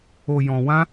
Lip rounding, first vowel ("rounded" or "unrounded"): rounded